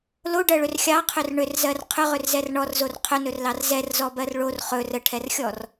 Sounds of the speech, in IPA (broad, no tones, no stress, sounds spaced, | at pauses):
l o ɖ ɜ ɭ ʏ r xʲ ɑ qʰ ʏ r ɳ ʏ r z ɜ r qʰ ʏ ʁ ʏ r z ɛ r ɳ ɔ r z o r qʰ ɵ n ɵ r l ɑ r z ɛ r z ɔ b ɜ r ɭ o r χ ɵ r ə ʈʰ ɛ r xʲ ɔ r